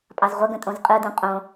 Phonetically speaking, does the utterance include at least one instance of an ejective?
yes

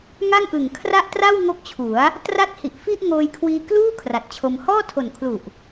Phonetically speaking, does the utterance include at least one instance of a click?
no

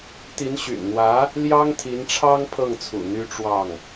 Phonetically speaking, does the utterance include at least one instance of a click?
no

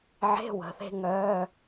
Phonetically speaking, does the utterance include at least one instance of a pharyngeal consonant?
yes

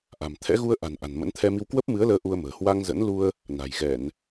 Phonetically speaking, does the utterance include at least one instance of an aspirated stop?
yes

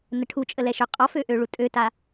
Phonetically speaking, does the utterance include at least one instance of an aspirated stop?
yes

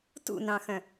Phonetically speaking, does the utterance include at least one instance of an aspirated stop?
no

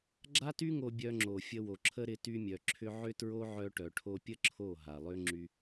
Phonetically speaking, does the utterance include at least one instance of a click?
yes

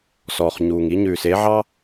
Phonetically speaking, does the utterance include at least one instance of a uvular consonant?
yes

